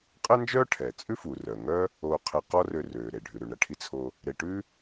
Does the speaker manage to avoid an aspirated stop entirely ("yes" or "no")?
no